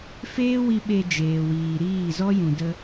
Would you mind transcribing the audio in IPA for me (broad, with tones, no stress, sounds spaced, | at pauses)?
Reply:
f eː˦ w i˧ ɓ e˧ d͡ʒ eː˨ w iː˨ ɾ iː˦˨ z ɔ˦ j ũ˨ d ə˧